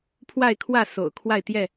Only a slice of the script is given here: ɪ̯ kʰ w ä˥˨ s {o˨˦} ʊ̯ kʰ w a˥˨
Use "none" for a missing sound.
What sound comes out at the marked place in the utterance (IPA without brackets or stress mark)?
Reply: o̰˨˩